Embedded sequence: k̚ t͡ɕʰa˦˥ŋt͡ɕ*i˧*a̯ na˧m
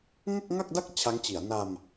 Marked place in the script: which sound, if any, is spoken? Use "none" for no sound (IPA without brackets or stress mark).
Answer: i˩˦